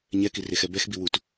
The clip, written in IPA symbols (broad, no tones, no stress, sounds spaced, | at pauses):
ɲ ɛ k i r e x ɛ b ɛ x b i w u t